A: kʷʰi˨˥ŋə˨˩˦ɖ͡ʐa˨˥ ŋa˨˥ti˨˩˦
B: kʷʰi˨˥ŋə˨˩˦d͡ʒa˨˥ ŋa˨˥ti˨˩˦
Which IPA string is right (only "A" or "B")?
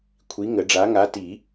A